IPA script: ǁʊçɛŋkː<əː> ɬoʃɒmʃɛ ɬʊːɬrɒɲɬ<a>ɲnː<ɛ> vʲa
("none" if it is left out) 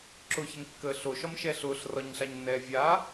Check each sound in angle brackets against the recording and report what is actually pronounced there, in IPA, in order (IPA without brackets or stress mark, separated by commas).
əː, a, ɛː